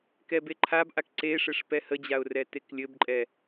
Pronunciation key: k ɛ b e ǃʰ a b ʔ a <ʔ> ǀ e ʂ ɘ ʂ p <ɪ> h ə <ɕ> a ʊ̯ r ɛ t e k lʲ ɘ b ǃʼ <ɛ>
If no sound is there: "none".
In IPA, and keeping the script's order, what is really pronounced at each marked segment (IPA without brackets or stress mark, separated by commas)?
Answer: k, ɛ, d͡ʑ, ɛ